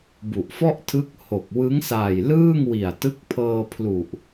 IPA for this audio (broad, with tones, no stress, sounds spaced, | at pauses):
b u˨˩ ʔ f ɔ˥˩ ʔ tʰ ɯ˦˥ k̚ h o˨˩ k̚ w ɯ˦˥ ŋ s aː˨˩ j l ɯː˥˩ ŋ w i˨˩ a̯ t ɯ˦˥ k̚ pʰ ɤː˧ pʰ l u˨˩ ʔ